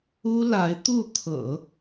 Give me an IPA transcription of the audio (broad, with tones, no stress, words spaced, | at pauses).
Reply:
u˥la˧˥ɪ̯t̪u˥˩ t̪ʰɤ̰˨˩˦